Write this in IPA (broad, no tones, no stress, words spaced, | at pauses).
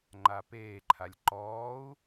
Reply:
ŋ͡ǃapeːǃʰalʲ ǃɔːu̯